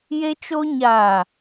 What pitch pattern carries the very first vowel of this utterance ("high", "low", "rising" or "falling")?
high